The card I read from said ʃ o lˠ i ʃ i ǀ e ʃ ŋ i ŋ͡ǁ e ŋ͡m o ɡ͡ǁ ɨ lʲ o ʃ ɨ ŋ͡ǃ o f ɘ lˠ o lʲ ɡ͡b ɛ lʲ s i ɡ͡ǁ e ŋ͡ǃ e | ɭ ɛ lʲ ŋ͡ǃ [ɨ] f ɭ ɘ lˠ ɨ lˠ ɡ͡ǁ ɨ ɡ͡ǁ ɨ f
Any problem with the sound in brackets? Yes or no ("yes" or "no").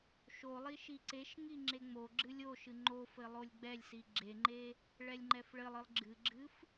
yes